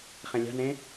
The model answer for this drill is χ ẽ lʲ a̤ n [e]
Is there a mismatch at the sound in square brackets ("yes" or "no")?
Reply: yes